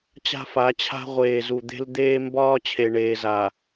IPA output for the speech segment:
t͡ɕ a̤˦ f a˨˦ t͡ɕʰ a̤˦ ʁʷ eː˨ z u˨ d̪ e̤˦ l d̪ eː˦ m b ɒː˦ t͡ɕʰ e˨ ɳ eː˨ z a˨

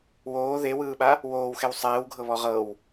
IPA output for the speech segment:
w oː ð e w ɯː ɓ a | w oː w x ɛ w sˤ ɛː w ɡʱ ɤ β ɔ ʁ ɤ w

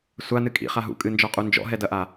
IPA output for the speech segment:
sʷ a n ɨ kʼ ḭ χ a ɦ ṵ kʼ ɨ n d͡ʒ ɔ qʼ u n d͡ʒ ɔ̰ ɦ ɛ d ɐ ʔ a

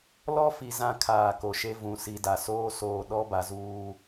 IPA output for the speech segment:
l ɔ˦ f i˨ z ã˦ kʰ aː˨ k o˨ ʃ e˦ v ũ˨ s i˨ d a˨ s oː˦ s oː˨ ɗ ɔ˦ b a˨ z uː˦

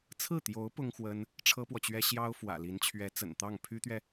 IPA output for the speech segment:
t͡sʰ ɹ̩˥˩ t̪ j o˧˥ ʊ̯ p ʊ˥ ŋ x w ə˥ n | ʈ͡ʂʰ ɤ˥ p w ɔ˨ t͡ɕ ɥ ɛ˥ ɕ j ɑ˥ ʊ̯ f w ä̰˨˩ l i˧˥ n t͡ɕʰ ɥ ɛ˧˥ t͡s ə̰˨˩ n t̪ ɑ˥˩ ŋ pʰ y˥ t̪ ɥ ɛ˨

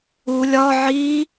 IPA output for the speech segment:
u lʲ ɒ ʕ i

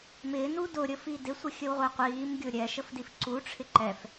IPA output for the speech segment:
m ɪː n u d ʊ ɾʲ ə f i d ɪ sʷ ə xʲ ə w ʁʷ ɛ qʷ iː m ɡʲ ʊ ɾʲ ɛ ʃ ə f d i f ǀ u ʈ͡ʂʰ ɪ ǃ ɛ f

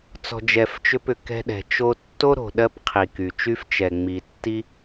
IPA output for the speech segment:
t͡s ɔ̤˨ d͡ʒ ɛ˨ f t͡ʃ ʏ˧ p ʏ˨ k ɛ̤˧ ɗ ɛ̤˨ t͡ʃ o˧ tː o˦ ɾ o̤˨ ɗ ɜ˦ p qʰ i˨ k y˨ t͡ʃ y˦ f t͡ʃ ɛ˨ ŋ͡m i˨ tː i˦

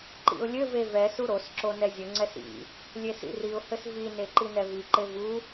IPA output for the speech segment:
ǃ ḭ ʊ̯ lʲ ɘ v e v ɛ s u ɾ o s ǁ o n ɛ zʲ ɘ ŋ͡ǀ ɛ s ḭ | lʲ e s ḭ r i ʊ̯ h ɘ s v i n e ǃ i n ɛ v i ǃ e v u

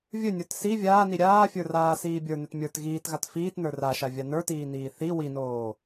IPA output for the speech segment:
vʲ ɵ nʲ ə˞ t s i vʲ aː n i ɾʲ aː fʲ ə˞ r aː s iː bʲ ə˞ n ɵ t mʲ ə˞ t ɣ iː t ɣ a t f iː t n ə˞ r a ʃ a vʲ a n ə˞ t iː n iː θ i w i n oː

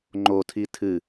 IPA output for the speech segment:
ŋ͡ǃ o tʰ i tʰ ɨ

